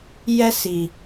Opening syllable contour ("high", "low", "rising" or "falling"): high